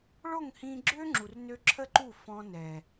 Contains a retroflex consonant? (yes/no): yes